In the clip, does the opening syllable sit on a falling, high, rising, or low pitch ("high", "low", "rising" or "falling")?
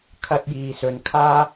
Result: high